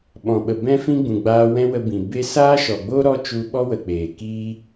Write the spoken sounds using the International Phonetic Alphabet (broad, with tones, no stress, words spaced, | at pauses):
ɓɔ̃˨ɓə˨ bɛ̃˦fĩ˦ ɡ͡bũ˨ɡ͡baː˧ wɛ̃˦wə˧bĩ˨ be˧saː˦ʃɔ˨ɡ͡bo˦ ɾɔ˦t͡ʃu˧ɓɔ˦wə˨ k͡peː˨kiː˦